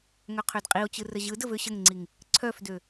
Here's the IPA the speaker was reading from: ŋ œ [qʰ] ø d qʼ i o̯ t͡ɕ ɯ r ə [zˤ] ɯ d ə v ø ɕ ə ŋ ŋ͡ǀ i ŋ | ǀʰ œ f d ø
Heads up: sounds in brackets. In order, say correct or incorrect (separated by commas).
correct, incorrect